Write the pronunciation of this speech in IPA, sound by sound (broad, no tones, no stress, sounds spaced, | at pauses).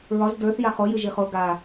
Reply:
ɹ ɒ z d ə˞ θ j a χ o j ɨ ʒ i χ o ɡ a